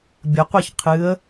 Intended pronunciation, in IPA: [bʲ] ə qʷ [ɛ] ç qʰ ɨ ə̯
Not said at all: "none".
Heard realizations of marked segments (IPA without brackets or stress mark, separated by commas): bʲ, ɛ